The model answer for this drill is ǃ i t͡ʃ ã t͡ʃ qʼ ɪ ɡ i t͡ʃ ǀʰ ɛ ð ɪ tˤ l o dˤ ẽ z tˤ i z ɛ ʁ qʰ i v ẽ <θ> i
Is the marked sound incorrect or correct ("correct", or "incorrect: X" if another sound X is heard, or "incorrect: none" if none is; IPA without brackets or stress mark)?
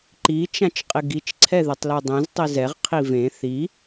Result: correct